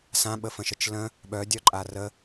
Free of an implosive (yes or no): no